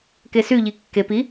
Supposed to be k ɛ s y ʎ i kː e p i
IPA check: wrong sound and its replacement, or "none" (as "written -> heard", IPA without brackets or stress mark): ɛ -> e